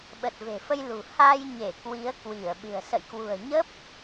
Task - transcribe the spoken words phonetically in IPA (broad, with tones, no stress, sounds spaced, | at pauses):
ɓ ə˨˩ t̚ v e̤˨˩ f ə˧ j l ṳ˨˩ h a˧ j ɲ e˧˩ k w i˨˦ ə̯ k w i˧˩ ə̯ ɓ ɨ̤˨˩ ə̯ s ə̰˧˨ j k w ṳ˨˩ ə̯ ɲ ə˦˥ p̚